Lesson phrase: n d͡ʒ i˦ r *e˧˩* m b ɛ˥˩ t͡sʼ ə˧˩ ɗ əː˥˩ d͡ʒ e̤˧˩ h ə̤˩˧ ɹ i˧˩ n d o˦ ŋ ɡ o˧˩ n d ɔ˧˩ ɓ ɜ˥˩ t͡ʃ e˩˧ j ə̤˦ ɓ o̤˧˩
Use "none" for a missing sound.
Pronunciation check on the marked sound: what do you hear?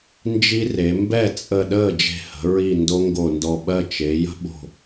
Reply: e˩˧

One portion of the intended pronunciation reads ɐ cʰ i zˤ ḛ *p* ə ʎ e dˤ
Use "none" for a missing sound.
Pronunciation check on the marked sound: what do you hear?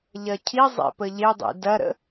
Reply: p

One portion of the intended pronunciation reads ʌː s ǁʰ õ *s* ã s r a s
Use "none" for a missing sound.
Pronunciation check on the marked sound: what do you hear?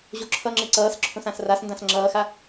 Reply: s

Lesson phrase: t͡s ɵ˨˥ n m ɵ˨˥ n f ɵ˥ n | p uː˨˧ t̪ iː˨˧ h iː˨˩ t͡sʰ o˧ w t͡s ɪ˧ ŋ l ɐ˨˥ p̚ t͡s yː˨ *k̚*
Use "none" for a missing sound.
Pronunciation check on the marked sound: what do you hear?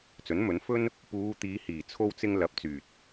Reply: t̚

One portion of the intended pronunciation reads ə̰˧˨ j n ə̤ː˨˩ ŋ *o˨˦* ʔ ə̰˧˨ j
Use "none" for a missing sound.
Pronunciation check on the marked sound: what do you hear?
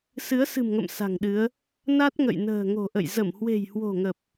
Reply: o̤˨˩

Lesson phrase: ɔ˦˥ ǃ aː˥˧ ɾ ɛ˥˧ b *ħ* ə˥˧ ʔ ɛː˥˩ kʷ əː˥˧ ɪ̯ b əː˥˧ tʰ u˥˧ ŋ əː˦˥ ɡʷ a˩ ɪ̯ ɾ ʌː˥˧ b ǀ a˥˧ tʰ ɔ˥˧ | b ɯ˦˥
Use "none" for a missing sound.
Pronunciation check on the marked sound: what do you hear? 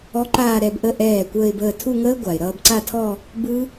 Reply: ʔ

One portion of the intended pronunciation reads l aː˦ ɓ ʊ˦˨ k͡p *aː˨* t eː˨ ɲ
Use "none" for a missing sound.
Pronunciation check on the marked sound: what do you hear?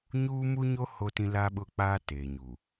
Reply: aː˦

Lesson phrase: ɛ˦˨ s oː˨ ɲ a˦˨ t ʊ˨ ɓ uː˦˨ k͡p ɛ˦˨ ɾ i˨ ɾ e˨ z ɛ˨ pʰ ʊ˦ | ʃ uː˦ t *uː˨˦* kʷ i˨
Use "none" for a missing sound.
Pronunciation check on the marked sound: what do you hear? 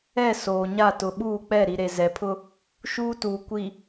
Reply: uː˨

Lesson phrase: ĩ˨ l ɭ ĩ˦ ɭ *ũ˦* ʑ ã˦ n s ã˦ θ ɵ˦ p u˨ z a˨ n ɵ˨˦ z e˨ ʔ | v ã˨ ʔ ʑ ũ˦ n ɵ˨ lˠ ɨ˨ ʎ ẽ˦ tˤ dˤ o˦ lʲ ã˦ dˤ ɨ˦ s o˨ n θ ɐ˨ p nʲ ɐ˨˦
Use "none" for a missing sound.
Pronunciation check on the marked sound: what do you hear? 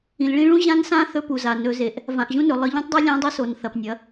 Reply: ũ˦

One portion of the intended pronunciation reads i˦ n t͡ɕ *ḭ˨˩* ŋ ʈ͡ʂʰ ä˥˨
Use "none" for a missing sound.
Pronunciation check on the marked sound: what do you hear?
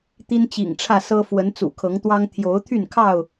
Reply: ḭ˨˩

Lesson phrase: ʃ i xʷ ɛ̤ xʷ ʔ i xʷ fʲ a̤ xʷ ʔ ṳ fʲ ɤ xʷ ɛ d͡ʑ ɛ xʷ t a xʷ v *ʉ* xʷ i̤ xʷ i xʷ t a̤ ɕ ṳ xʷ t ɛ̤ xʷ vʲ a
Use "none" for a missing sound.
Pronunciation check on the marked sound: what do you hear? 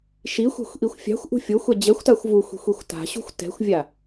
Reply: u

